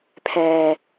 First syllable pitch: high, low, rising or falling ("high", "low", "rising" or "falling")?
low